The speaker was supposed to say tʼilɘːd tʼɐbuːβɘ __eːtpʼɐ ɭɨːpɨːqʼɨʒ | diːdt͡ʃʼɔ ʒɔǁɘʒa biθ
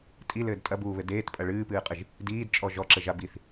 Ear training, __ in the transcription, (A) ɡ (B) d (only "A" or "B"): B